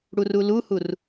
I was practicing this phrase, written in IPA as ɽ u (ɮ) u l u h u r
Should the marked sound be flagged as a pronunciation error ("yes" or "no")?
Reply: yes